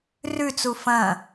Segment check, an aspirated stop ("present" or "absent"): absent